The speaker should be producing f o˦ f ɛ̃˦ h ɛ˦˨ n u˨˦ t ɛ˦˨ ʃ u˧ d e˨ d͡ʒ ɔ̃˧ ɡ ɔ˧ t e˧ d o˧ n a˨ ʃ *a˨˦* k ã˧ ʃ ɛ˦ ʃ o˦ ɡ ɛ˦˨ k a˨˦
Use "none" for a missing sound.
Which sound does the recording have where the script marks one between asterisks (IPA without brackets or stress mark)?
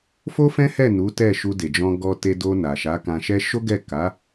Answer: a˨˦